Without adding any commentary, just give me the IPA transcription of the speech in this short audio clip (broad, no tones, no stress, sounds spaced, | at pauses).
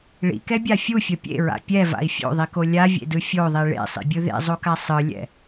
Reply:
ɭ ḭ k ɛ bʲ a fʲ u fʲ ʌ pʲ ḛ ɹ a̰ pʲ ɛ v a̰ i̯ fʲ o̰ ðˤ i k o lʲ a vʲ ḛ d ɯ fʲ o ðˤ i ɭ ḛ sˤ ḭ bʲ ɯ ð ḛ zˤ o k a sˤ ɯ lʲ ɛ̰